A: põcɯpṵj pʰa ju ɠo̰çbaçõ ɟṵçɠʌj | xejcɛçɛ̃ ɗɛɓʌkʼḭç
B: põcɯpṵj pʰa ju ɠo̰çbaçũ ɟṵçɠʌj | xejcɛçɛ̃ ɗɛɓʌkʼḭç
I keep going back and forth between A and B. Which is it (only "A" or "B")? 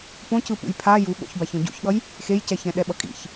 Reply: A